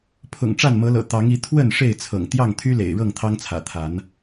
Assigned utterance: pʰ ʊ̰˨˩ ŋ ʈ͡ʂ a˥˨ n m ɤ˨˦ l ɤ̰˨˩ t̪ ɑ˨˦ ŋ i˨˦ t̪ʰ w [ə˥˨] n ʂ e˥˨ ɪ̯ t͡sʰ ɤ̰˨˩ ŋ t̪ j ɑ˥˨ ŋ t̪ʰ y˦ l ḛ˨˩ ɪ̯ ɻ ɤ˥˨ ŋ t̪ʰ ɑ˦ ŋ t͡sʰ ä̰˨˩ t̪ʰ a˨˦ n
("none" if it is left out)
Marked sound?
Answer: ə˥˨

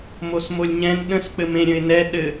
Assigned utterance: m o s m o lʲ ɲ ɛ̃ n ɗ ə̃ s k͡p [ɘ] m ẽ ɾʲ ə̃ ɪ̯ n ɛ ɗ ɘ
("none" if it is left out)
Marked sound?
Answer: ɘ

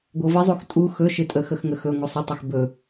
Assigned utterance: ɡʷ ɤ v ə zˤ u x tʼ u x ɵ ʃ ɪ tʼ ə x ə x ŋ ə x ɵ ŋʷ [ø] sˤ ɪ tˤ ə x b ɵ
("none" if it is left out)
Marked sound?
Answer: ə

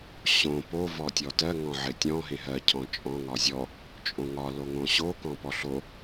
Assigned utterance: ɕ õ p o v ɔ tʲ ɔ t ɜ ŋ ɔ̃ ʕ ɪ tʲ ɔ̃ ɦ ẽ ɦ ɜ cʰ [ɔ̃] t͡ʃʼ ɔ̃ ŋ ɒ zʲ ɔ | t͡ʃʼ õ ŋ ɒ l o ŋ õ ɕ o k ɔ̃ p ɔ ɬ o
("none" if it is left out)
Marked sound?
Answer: ɔ̃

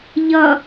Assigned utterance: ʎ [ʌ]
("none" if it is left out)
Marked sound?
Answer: ʌ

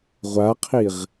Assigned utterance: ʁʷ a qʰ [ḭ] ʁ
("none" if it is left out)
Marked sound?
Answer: i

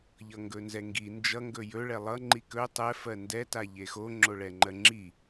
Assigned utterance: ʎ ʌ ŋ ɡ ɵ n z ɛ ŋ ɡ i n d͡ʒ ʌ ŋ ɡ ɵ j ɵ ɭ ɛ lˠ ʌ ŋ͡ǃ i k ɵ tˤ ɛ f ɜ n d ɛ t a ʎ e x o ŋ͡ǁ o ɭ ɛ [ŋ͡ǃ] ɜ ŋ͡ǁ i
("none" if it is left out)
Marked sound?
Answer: ŋ͡ǃ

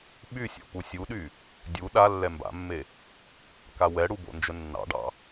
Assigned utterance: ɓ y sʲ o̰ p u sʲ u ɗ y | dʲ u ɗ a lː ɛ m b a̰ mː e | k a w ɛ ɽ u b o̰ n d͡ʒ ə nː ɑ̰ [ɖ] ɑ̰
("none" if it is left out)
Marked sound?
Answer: ɖ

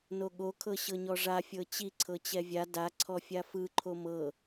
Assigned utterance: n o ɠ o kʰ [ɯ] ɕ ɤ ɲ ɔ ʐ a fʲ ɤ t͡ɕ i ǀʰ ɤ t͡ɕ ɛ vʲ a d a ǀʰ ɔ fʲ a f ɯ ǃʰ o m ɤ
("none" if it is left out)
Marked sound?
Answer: ɤ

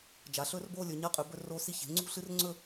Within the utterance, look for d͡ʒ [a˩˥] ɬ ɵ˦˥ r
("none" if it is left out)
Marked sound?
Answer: a˩˥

